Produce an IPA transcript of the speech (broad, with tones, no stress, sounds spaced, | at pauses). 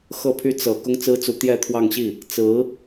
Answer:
x ɤ˥˩ pʰ y˥ t͡s ɤ˨˩ k ʊ˥ ŋ t͡s ɹ̩˥ t͡s u˧˥ t̪ j ɛ˥˧ t̪ʰ w ɑ˥˧ ŋ ɕ i˥˩ | t͡s ɹ̩˧˥